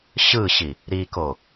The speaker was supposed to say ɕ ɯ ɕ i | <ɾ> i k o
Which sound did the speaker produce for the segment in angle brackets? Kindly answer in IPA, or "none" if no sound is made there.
ɾ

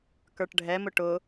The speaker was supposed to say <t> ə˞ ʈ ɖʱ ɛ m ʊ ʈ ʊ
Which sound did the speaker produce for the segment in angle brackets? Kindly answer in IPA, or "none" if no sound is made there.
k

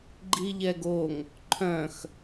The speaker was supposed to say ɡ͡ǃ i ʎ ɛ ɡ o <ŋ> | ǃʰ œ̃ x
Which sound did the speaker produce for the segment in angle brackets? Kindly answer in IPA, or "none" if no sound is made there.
ŋ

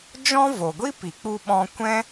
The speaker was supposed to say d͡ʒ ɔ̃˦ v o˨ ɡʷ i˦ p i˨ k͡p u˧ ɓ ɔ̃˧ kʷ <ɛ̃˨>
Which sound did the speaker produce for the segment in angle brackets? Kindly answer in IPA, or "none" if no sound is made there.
ɛ̃˦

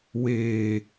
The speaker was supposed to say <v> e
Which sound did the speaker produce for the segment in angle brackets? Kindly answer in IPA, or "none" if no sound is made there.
w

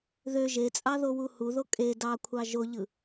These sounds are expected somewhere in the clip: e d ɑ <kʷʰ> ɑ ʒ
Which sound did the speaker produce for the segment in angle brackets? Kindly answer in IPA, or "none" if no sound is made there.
kʷʰ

